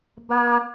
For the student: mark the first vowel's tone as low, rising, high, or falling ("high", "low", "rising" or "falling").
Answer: high